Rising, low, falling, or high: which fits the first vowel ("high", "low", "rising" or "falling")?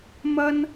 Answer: high